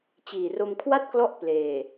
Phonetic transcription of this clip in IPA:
t͡ɕ iː˨˩ r o˧ m kʰ w a˥˩ t̚ k l ɔ˦˥ ʔ p l eː˨˩

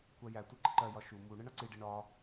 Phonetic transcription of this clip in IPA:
kʷ æ j æ tʷ ʌ ǃ ɪ ǃ ɜ j ɒ ʃ u m u ɳ ɪ ɳ ʌ ǀ i ɖ i ɳ ɒ

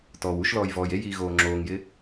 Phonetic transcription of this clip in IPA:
t ɔː w u ʃ l ɔː j v ɔː j e j iː ɣ oː ŋ͡ǁ oː ŋ j ɪ

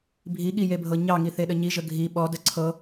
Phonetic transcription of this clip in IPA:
bʱ i ɠ i j e bʱ ɤ ɲ ɑ ŋ i θ e ɗ ə ɲ i ʒ ə ɡʱ i ɓ ɔ d ə ǀʰ ɤ

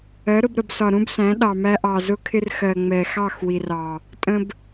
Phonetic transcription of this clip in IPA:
ɜ˨˦ ɾ ʊ˧ b ɾ ə˨ b s ɒ˨ ɾ ũ˦ b s æ̃˨˦ ɗ ɑ˨ m æ˧ ʔ ɑ˨ z ʊ˦ kʰ ɪ˦ r x ɜ˨ ŋ͡m ɛ˨ x ɑ˦˨ x w i˨ r ɑ˨ | tʼ ə̃˧ b

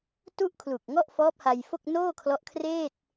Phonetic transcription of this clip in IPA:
t u˥˩ ʔ kʰ l u˨˩ k̚ ŋ ɔ˥˩ ʔ f ɔː˦˥ p̚ h a˧ j f o˥˩ k̚ n oː˥˩ kʰ l ɔ˦˥ ʔ kʰ r eː˥˩ t̚

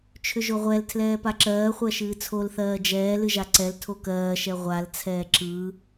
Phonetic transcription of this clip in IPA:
t͡ʃʰ ʏ ʒ o ʁʷ ɛ l tʰ l ɛː p a ǁ ɜː χʷ ɜ ʃ ɨː t͡sʰ o l θ ɜː d͡ʒ ɛː l ɨ ʒ a ǀ ɛ l tʰ o k ɜː ʃ ɛ ʁʷ a l t͡sʰ ɛː ǁ ɯː

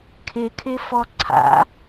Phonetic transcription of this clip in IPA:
kʰ ɪ kʰ ɪ f ɔ ǀʰ a̰

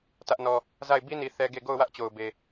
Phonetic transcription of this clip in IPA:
t ä˦ ʔ n ɔ˦ | z a˦˨ ɪ̯ b i˦ n i˨ θ ɛ˦ ɡ e˦˨ ɡ o˦˨ ʊ̯ w ä˦ ʔ t͡ɕ o˨ ʊ̯ b e˨

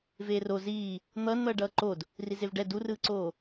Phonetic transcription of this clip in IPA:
v eː r o z iː | n̪ ʌː n n̪ ʌː ɖ ʌː ǃ o d | r i z e v ɖ ɛ d u r ɯː ǀ oː

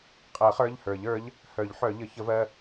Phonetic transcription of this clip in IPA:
qʼ ɜ˨˩˦ χ ə˞˩˧˩ ʎ h ə˞˨˩˦ ʎ ə˞˩˥ ʎ | h œ˨˩˦ ʎ ħ œ˨˩˦ ʎ ə˩˥ ç ə˩˥ v ɜ˩˧˩

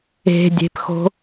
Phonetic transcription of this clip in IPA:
e̤ dʲ e̤ p x o̤

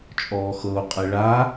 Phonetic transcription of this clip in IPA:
t͡ʃʼ ɔː x ɤ o̯ qʼ e ɭ a

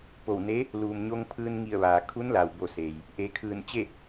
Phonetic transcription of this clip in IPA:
p o˧˩ w n e˧˥ | l uː˩ m ɲ o˧ ŋ pʰ ɯː˧ n ŋ i˧˩ ə̯ ʋ aː˩ kʰ u˧˥ n l a˩ w b o˧˩ s eː˩ j | ʔ e˩˧ kʰ ɯː˧˩ n t͡ɕ e˥˨

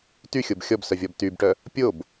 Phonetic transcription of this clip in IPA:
t y xʲ o b xʲ ɔ b s œ vʲ ɔ b t y b ʈ œ | pʲ o b

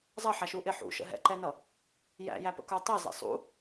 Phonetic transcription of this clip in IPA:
zˤ ʌ ħ æ ʃ u ʔ ɪ ħ ṵ ʃ ə̰ ɦ ɛ̰ ǃ ɛ n ʌ | j æ̰ j æ p ə̰ k ə˞ tˤ ɛ z ɛ̰ sˤ ṵ

